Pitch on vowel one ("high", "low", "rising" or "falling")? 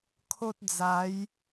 high